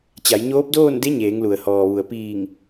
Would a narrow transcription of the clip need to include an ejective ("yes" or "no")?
no